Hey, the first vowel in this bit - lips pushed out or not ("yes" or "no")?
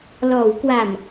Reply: yes